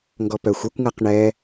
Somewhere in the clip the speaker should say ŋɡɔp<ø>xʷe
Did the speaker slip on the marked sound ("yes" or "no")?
yes